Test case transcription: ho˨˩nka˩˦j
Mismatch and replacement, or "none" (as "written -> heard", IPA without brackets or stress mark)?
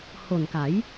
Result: none